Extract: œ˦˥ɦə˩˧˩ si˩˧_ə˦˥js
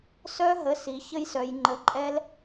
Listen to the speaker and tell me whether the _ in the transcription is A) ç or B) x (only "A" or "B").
A